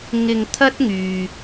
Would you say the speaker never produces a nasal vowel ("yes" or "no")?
yes